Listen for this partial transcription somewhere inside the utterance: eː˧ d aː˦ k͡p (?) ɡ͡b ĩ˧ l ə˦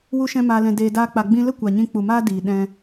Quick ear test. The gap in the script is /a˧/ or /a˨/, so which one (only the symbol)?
a˧